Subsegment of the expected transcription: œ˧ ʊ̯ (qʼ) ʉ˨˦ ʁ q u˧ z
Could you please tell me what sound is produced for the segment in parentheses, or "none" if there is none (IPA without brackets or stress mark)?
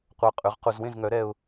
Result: qʼ